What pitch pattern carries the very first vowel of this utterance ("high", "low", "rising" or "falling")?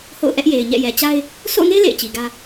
falling